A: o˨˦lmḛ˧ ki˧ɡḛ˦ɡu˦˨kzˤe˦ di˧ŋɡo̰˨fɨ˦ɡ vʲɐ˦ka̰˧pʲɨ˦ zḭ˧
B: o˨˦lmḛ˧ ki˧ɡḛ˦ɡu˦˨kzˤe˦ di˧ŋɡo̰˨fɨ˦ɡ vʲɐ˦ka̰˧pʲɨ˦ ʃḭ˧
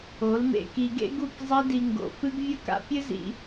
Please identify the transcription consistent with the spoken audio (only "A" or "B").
A